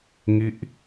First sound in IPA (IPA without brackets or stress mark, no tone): ŋ